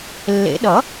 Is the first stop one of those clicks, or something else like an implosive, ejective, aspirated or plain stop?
implosive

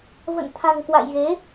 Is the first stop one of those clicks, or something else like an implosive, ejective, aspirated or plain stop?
aspirated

